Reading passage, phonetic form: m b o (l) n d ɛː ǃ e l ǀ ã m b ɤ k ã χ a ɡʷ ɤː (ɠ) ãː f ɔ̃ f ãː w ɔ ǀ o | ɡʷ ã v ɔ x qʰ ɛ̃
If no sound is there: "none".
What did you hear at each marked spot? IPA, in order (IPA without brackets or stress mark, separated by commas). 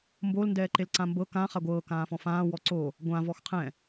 l, k